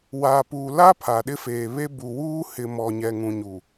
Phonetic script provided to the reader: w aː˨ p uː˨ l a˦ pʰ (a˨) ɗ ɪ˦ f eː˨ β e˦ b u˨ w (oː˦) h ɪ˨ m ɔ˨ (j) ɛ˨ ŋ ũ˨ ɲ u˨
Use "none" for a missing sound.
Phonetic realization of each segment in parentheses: a˨, uː˦, ɲ

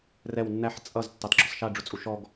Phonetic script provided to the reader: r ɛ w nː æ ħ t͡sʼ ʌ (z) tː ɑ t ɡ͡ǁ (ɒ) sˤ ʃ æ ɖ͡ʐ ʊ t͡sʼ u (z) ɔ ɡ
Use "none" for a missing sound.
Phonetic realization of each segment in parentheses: z, ɒ, ʃ

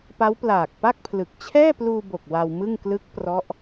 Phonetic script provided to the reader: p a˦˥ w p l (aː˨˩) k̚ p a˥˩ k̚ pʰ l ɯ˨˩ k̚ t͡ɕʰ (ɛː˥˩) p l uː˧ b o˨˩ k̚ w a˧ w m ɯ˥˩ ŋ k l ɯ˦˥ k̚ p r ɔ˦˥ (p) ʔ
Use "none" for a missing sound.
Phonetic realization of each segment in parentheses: aː˨˩, ɛː˥˩, none

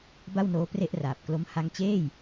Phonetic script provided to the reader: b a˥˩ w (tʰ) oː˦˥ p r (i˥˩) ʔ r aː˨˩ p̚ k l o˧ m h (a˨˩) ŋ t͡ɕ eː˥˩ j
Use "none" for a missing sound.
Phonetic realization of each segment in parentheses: n, e˥˩, a˧

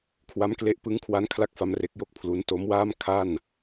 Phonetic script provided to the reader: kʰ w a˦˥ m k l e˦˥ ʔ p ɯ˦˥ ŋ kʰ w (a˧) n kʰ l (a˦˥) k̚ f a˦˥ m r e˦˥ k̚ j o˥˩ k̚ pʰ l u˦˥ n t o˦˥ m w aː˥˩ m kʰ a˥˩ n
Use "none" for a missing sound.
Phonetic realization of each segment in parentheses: a˦˥, a˦˥

